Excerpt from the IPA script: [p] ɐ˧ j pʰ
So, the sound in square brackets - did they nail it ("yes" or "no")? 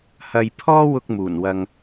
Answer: no